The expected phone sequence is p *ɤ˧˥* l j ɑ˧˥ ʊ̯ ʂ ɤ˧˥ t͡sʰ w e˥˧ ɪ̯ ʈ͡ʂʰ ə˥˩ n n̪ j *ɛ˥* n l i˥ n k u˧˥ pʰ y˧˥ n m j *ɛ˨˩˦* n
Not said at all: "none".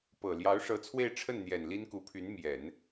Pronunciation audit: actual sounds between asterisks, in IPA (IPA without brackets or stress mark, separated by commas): ɤ˨˩, ɛ˨˩, ɛ˨˩˦